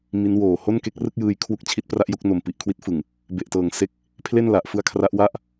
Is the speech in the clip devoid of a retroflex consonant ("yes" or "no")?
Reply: yes